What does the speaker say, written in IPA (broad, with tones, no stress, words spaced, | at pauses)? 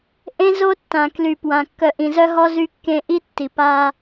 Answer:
ʔẽ˦zo˦ tːã˨kly˨pwã˨ kːœ˨ ʔĩ˨zœ˦ɦɔ˦ zy˦kːẽ˦ ʔi˦ tːi˨pa˦